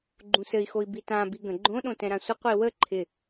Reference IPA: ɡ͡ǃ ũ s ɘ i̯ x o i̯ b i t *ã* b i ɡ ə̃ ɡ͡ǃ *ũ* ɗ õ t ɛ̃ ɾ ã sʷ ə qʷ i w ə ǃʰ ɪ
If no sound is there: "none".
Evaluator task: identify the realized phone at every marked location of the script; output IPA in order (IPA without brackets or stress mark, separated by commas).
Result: ã, õ